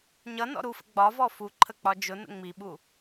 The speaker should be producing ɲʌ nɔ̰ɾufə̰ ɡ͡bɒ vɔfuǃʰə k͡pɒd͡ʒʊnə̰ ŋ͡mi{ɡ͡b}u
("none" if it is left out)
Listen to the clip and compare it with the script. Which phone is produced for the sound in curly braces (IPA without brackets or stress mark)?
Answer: ɓ